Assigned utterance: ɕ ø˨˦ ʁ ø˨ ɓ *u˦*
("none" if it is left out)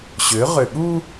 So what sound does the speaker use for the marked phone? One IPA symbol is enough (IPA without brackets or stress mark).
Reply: u˦